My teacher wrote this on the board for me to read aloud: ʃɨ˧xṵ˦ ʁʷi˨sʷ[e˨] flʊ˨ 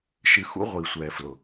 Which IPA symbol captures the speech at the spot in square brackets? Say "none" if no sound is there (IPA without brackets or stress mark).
ɛ˨